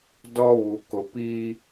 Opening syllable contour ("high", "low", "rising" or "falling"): high